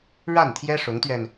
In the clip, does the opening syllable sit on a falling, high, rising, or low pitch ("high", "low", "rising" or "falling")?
falling